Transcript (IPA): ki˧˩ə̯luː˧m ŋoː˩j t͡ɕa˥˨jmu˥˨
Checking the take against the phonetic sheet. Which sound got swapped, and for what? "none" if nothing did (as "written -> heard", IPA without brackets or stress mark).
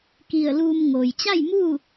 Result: none